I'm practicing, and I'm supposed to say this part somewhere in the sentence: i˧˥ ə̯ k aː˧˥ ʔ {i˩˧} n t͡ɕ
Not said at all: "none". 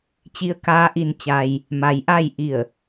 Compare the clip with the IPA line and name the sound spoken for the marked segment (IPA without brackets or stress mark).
i˧